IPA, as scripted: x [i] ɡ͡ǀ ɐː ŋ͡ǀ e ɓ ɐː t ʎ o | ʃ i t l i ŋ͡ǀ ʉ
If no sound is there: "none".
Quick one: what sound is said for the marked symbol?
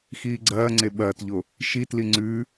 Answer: iː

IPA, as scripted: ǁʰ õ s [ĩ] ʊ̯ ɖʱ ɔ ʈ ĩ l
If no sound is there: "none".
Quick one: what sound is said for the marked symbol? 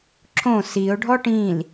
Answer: i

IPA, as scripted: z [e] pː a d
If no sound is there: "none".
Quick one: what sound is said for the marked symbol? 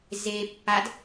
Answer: e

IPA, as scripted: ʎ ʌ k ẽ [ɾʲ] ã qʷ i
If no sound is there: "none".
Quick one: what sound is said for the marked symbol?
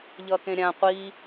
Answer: ɾʲ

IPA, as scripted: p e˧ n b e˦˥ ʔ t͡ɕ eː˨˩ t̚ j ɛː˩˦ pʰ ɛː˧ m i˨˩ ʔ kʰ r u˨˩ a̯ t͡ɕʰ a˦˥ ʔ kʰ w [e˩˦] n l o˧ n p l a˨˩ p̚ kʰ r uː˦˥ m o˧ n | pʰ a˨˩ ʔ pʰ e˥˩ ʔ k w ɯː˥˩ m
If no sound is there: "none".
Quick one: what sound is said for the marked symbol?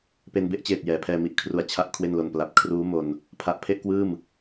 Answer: e˥˩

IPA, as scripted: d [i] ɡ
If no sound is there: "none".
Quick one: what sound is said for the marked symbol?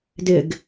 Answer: ɪ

